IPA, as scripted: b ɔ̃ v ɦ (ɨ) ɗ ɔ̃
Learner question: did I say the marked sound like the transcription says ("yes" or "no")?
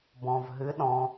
yes